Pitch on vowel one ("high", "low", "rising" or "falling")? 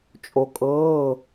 low